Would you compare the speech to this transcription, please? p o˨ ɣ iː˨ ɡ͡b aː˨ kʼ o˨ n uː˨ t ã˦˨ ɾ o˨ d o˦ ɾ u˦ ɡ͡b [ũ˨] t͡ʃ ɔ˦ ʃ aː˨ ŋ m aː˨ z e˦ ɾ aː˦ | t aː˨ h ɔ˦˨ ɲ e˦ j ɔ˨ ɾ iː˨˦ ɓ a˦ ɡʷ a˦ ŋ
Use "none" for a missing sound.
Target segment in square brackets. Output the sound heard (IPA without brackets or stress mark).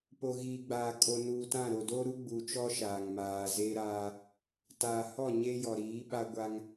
u˨